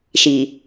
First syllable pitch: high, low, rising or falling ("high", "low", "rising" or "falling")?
low